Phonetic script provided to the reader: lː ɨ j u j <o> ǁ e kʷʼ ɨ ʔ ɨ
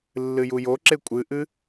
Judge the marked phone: correct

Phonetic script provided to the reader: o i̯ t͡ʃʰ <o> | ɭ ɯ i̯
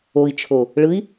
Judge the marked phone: correct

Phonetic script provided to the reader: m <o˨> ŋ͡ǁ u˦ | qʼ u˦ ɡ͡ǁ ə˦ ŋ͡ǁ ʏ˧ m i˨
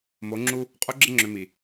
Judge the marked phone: incorrect: o˨˦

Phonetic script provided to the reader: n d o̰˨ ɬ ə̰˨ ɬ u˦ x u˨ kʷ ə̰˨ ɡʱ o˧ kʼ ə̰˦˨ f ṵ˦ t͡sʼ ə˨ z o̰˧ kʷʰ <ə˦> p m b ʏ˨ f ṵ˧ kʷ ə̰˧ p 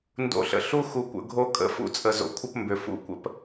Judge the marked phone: correct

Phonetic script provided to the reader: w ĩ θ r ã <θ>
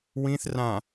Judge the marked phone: incorrect: none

